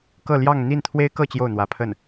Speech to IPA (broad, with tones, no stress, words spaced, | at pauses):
kɤ˥˧ljɑ˥˧ŋ n̪i˥˩nt̪ʰwe˥ɪ̯kɤ˥˧ t͡ɕjo˥˩ʊ̯n̪wä˧˥pʰə˥˩n